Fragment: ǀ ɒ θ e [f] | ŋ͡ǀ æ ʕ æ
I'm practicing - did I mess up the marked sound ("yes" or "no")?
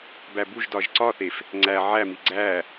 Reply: no